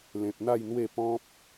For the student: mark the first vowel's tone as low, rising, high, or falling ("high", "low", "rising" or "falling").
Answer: low